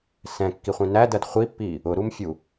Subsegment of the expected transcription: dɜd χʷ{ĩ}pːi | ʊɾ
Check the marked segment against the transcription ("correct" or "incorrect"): incorrect